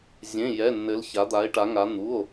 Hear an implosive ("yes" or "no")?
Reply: no